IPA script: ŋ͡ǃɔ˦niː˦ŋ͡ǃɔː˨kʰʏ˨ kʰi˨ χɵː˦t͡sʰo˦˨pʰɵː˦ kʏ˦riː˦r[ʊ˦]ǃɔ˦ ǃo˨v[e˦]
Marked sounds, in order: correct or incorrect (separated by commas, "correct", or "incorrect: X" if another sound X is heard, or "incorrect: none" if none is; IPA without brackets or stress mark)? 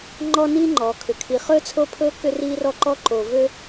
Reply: incorrect: ɔ˦, incorrect: ø˦